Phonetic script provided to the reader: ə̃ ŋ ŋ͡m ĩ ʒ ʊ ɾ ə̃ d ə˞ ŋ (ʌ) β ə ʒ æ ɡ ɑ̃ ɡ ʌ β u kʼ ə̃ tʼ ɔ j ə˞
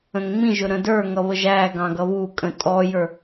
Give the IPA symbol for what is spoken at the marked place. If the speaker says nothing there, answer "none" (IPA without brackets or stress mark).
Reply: ʌ